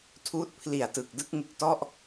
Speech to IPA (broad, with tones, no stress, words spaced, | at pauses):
tʰuː˦˥t̚pʰli˨˩a̯tɯ˨˩k̚ dɯ˥˩k̚ŋɯ˨˩k̚tɔ˥˩ʔ